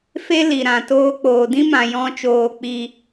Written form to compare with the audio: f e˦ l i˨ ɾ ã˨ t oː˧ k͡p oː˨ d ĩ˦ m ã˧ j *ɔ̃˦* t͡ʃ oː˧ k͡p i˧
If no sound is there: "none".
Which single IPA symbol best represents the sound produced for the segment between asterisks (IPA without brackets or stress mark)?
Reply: ɔ̃˦